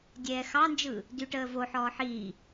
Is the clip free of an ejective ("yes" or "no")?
yes